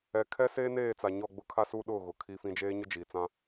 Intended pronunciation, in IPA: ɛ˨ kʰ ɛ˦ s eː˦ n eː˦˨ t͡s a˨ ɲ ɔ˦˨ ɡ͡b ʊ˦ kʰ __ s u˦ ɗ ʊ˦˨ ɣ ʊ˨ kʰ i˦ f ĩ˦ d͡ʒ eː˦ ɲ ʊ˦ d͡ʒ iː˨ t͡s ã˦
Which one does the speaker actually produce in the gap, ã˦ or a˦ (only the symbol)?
a˦